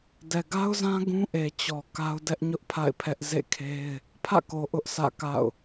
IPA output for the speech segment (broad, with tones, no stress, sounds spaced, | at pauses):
d ɛ˨ ɡ a˦ ʊ̯ z ã˦ ɡ ũ˦ ʔ e˨ t͡ɕ ɔ˨ k a˦ ʊ̯ d ɛ˦ ʔ ɲ ʊ˦ ʔ pʰ a̰˦˨ ɪ̯ pʰ ɛ˦ ʔ z ḛ˦˨ kʰ e˦ ɪ̯ | pʰ ä̰˦˨ k o˨ ʔ ʊ˦ ʔ s ä̰˦˨ k a̰˦˨ ʊ̯